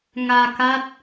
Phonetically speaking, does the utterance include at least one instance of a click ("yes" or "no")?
no